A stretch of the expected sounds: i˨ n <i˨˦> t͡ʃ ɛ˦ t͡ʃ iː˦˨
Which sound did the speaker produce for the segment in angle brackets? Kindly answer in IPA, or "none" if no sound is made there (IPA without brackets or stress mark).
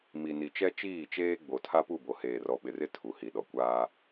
i˨